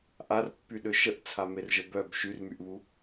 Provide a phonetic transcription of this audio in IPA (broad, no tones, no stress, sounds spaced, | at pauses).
ʔ a r pː y ɗ ø ʃ ə ʔ t͡sʰ a m e r ʒ ə b œ b ʃ y r m y ʔ β u